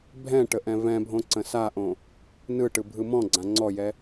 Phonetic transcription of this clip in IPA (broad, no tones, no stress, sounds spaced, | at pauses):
bʱ ɛ̃ ʈ ə ʔ ɛ̃ v ɛ̃ bʱ õ ǀ ə̃ s a ʔ õ | n ɯ ʈ ɯ bʱ ɯ m ɔ̃ ɡ͡ǀ ã ŋ͡ǀ ɔ j ɛ